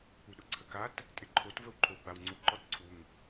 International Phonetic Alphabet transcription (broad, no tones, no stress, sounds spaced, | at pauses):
u ɗ ʊ ǀʰ ə k a t | tʼ ɪ ǃʰ o t v ə w ǃʰ o w ɡ͡b a w ŋ͡ǀ u ǃ ɔ t ǀʰ u ŋ